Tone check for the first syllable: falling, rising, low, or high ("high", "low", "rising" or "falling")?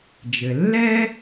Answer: low